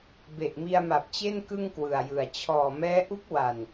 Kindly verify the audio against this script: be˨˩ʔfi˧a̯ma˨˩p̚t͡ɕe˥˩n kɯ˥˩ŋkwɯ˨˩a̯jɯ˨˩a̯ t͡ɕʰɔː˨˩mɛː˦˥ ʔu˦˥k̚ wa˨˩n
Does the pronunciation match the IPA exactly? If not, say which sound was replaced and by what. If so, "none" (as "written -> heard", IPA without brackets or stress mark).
f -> m